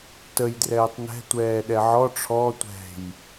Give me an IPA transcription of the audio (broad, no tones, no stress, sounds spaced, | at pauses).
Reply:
t ə j d r ɛː tˤ n ɛ̤ tʷ ɛː ɗ ɛ ʕ ɔ ʈ͡ʂʰ ɔ tʷ ɛ̤ j